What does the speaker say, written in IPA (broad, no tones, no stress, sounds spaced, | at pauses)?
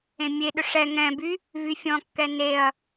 ẽ mʲ e ɗ ʏ ʂ ɛ ŋ ɛ̃ b y | v y fʲ ɔ̃ kː ɛ n e ɐ̯